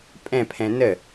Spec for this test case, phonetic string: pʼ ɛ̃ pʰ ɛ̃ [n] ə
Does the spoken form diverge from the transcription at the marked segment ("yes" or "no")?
no